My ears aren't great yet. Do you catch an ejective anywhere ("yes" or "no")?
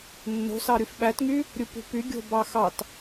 no